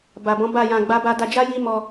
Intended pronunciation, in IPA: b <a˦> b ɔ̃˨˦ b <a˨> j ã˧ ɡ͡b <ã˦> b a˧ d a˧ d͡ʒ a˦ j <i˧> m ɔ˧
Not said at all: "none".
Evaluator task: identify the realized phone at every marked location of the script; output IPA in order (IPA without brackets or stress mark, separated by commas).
a˨, a˦˨, a˦, i˦